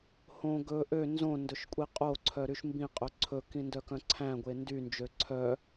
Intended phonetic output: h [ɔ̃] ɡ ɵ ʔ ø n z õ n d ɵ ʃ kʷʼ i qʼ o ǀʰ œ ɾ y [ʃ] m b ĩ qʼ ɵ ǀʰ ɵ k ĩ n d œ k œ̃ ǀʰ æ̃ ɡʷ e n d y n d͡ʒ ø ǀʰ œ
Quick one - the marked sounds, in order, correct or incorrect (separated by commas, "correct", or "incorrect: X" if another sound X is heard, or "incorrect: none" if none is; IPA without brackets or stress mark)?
incorrect: õ, correct